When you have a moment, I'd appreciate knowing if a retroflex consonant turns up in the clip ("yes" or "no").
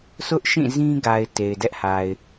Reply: no